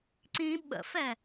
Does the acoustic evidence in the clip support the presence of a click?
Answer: yes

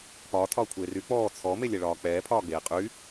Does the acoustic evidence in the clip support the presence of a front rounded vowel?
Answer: yes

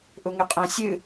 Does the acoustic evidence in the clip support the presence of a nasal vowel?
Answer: yes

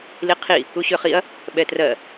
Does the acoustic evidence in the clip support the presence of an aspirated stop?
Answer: yes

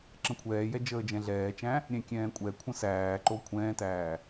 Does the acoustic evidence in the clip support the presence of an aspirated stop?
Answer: yes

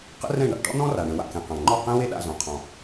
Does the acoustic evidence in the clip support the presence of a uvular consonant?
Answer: yes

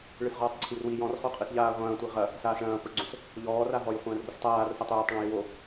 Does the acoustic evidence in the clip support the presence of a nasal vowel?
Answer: yes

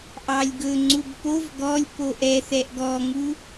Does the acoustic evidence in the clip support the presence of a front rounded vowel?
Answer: no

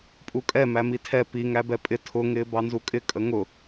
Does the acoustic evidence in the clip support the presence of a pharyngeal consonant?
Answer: no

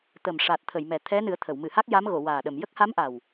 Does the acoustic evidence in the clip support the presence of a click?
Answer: no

